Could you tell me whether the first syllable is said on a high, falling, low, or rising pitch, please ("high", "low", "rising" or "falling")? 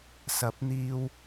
rising